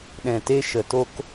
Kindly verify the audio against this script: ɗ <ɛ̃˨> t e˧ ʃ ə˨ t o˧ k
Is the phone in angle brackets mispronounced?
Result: no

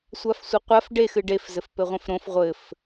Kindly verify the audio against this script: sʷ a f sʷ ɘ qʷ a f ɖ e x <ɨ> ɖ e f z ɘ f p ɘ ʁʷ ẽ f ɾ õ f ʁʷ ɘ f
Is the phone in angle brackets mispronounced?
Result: no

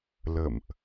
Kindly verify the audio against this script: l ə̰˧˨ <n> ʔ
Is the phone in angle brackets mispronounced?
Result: yes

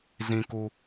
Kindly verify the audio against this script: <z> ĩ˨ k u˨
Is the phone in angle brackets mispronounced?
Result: no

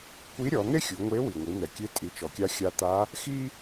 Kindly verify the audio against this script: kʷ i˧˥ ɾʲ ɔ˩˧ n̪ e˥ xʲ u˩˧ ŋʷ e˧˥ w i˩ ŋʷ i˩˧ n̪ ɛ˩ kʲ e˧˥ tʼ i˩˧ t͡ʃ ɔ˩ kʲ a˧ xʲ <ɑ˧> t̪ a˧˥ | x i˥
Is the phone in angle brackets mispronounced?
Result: yes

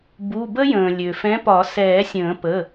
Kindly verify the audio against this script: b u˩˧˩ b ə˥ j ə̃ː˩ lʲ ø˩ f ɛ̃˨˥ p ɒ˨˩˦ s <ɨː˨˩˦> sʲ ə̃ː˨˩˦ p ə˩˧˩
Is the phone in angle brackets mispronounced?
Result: yes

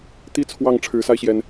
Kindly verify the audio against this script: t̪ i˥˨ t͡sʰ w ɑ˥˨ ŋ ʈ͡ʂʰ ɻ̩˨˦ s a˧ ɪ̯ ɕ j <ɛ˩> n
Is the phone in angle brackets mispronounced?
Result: no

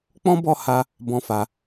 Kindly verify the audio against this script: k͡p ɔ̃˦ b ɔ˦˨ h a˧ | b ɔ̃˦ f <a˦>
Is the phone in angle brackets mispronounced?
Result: yes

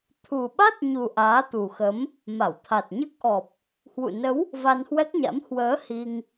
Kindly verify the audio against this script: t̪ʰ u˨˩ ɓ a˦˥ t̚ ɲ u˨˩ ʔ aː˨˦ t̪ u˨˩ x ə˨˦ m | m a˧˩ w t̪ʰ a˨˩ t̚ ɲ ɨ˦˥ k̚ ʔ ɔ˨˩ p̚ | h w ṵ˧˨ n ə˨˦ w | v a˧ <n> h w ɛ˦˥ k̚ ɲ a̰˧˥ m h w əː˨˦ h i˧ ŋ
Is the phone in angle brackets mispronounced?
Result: no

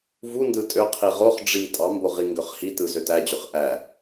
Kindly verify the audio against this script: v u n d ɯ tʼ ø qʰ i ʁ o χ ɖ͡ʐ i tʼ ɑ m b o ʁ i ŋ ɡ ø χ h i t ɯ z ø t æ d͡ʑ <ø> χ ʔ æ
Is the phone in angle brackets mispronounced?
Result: no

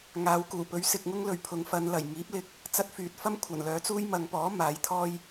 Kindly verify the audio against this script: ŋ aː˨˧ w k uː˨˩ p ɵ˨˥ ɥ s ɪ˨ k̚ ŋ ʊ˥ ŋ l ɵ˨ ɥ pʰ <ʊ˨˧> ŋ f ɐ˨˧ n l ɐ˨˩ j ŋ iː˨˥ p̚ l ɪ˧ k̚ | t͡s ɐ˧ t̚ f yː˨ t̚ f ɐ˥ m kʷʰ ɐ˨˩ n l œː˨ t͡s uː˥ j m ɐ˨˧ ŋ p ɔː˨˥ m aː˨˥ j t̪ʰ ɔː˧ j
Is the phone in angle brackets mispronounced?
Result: no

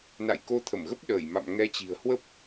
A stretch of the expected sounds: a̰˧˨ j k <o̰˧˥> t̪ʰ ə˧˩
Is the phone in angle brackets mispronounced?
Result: yes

